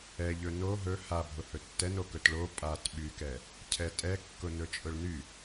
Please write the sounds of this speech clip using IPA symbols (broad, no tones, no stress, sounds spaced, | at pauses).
ɛ ʎ ɵ n o ɦ ɵ h a bʱ ʊ h ɵ tː ɛ n o k ɵ t ɭ o pʼ a t ɓ y k ɛ | cʰ ɛ tʼ ɛ kː ʊ n ɵ t͡ʃʼ ʊ ɭ n y